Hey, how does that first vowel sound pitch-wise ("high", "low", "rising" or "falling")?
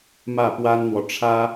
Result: falling